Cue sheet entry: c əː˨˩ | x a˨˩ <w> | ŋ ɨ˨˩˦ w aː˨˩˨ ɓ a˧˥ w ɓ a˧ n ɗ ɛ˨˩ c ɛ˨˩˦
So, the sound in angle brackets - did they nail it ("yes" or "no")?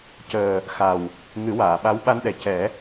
yes